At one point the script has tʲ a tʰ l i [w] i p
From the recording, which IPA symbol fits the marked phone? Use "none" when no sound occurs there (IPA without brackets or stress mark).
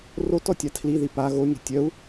ð